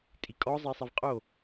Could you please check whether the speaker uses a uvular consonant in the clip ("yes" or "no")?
yes